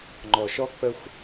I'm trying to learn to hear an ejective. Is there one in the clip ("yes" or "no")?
no